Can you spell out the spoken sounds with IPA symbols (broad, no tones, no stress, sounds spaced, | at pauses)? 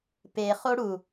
p e χ o ɽ u